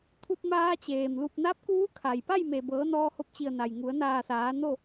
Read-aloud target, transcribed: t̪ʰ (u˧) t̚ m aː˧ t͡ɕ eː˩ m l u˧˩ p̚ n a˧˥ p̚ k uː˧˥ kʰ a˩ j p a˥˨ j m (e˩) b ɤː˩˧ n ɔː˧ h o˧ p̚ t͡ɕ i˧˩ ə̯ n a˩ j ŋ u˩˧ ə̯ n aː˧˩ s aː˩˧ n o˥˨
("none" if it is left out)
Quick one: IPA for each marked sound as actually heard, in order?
u˧, e˩

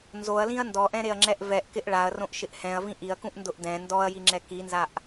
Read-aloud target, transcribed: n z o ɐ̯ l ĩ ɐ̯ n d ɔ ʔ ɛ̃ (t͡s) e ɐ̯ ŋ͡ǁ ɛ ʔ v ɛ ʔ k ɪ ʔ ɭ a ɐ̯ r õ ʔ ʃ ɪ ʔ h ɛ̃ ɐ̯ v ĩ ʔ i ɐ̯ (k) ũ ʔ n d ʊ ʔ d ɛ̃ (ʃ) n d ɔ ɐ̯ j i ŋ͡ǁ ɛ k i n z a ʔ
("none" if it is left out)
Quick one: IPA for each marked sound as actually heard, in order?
ɾ, k, none

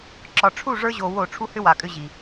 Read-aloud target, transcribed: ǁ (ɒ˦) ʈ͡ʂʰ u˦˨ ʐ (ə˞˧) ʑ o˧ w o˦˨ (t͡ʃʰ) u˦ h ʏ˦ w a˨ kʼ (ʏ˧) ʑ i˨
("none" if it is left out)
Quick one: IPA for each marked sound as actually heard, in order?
ɒ˨, ə˞˧, ʈ͡ʂʰ, ʏ˧

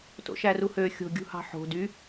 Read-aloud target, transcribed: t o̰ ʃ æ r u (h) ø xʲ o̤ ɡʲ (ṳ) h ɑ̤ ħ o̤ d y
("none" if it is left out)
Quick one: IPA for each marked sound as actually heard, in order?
h, ṳ

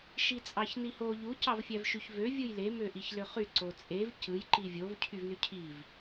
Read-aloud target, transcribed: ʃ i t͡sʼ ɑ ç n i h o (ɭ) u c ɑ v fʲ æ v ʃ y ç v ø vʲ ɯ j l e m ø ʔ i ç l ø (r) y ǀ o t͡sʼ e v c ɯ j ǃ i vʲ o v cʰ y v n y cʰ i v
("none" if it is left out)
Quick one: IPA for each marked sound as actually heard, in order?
ʎ, χ

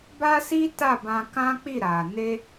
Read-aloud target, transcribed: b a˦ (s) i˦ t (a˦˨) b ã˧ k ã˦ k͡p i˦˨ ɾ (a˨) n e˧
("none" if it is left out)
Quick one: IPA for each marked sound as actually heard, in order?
s, a˦˨, a˨

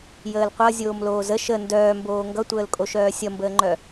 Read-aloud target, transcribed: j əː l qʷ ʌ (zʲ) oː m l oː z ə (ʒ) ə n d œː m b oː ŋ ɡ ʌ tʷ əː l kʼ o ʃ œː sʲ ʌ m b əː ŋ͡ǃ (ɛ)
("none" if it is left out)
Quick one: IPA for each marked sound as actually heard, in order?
zʲ, ʃ, œ

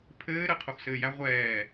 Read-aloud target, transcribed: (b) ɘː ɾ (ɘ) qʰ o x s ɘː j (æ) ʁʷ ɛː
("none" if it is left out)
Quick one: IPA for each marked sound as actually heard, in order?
pʰ, ɘ, æ

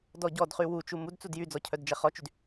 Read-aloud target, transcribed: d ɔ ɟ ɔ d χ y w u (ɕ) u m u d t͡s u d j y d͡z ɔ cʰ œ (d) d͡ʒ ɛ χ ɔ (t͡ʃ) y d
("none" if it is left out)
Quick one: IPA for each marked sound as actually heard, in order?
t͡ʃ, d, t͡ʃ

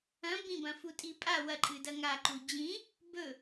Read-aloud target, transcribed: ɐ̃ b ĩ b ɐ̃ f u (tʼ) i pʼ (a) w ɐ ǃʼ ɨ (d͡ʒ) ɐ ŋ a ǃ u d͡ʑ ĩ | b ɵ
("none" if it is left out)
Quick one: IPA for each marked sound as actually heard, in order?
tʼ, a, d

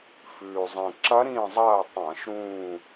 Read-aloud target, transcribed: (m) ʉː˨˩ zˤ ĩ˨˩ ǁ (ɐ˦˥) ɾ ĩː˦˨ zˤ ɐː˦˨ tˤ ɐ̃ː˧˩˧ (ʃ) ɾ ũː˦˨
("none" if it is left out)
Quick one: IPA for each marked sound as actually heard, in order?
f, ɐ˦˥, ʃ

